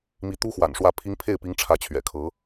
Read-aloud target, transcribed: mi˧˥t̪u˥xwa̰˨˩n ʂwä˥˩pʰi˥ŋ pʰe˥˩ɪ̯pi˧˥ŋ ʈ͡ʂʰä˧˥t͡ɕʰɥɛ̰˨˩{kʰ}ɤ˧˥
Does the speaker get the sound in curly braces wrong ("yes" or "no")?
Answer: no